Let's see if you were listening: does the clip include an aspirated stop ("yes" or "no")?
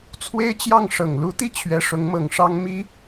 yes